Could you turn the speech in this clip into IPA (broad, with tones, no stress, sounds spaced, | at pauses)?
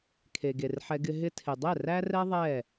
kʰ e˨ ɡ e˨ r ħ ɛ˧ ɡ ɪ˧ ɦ ɪ˧ tʰ ɪ˨ dˤ ɛ˦˨ r æ˦ r ɛ˦ ðˤ ɛ˦˨